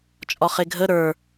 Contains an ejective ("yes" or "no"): yes